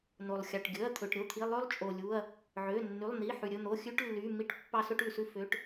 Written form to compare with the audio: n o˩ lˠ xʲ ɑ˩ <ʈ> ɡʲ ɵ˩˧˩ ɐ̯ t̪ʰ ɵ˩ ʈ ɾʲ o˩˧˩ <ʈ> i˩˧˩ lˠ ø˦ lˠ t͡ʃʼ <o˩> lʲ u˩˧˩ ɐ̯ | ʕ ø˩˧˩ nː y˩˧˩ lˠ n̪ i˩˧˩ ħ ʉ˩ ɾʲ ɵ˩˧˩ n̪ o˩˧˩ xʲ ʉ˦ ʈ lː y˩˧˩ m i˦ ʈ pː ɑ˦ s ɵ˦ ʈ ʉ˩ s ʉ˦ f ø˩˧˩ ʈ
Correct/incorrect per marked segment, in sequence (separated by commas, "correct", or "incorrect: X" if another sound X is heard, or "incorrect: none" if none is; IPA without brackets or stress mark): correct, incorrect: t̪ʰ, correct